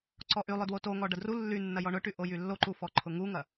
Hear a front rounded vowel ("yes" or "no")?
yes